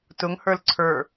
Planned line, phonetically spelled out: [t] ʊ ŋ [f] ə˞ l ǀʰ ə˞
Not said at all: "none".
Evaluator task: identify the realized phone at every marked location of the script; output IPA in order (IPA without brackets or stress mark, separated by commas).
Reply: t, h